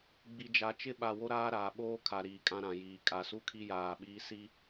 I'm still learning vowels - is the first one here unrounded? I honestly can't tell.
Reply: yes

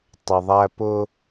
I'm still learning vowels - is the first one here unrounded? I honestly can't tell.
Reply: yes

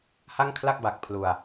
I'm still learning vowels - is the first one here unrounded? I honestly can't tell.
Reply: yes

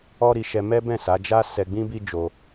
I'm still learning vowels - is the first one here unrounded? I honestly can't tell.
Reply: no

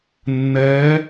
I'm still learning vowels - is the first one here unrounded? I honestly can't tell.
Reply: yes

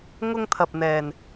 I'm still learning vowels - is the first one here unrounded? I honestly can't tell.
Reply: no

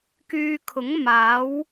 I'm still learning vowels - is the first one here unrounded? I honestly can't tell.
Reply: no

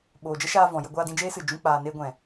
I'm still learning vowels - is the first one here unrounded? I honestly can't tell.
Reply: no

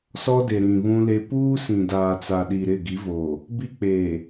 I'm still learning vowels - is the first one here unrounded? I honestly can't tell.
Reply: no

